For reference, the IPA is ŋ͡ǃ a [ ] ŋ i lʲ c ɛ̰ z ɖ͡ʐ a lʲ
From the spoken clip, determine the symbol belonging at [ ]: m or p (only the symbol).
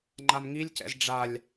m